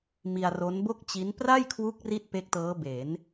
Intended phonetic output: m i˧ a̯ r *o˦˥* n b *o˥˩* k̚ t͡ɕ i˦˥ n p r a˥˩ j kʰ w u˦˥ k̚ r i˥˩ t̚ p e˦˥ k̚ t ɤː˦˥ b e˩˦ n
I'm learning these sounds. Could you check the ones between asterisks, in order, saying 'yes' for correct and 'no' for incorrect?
yes, yes

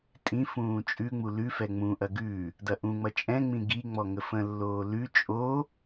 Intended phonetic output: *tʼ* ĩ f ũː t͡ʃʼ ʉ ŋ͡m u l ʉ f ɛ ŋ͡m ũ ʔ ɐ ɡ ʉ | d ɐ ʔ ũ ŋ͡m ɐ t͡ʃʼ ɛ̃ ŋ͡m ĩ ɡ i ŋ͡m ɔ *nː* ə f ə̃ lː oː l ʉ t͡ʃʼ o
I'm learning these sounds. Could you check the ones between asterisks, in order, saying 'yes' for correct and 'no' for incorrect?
yes, no

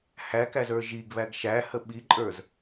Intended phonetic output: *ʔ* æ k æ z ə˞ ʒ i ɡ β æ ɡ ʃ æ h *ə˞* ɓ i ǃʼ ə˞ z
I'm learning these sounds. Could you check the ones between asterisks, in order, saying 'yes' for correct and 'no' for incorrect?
no, no

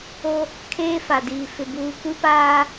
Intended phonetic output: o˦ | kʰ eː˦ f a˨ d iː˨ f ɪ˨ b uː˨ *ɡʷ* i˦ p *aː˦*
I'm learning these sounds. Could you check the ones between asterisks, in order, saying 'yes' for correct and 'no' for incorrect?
no, yes

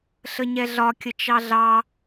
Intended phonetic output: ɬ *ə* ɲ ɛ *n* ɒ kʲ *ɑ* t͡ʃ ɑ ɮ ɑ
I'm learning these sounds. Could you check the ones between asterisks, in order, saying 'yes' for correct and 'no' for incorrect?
yes, no, no

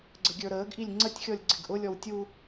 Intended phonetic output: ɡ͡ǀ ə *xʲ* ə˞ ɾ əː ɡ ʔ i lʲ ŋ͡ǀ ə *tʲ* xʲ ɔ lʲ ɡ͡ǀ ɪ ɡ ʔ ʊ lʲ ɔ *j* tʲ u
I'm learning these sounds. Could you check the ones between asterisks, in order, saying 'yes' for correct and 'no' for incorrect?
no, yes, no

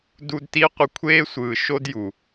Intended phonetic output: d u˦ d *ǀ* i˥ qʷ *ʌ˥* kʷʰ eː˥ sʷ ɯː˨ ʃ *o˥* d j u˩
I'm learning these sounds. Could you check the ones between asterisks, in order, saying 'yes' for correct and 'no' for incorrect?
no, no, yes

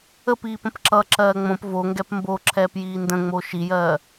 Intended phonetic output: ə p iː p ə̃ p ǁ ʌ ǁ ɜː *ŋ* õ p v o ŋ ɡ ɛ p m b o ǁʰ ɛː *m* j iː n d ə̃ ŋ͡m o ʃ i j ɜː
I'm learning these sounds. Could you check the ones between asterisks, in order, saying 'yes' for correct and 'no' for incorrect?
no, no

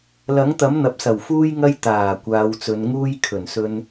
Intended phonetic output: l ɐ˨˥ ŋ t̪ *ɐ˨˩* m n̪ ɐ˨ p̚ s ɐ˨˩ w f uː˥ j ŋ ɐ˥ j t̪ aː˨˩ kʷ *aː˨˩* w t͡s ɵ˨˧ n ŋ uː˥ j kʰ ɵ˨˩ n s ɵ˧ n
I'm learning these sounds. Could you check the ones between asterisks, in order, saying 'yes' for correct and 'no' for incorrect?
no, no

